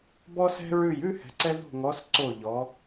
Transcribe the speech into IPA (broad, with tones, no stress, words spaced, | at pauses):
bɔ˧sɛ̤˧ɹʉ˧˩j ʉ˥˧hɛ̤˩˧ǀɛ˧ ðo̤˧˩ŋɔ˩˧s ǀo˧˩ʎɔ˩˧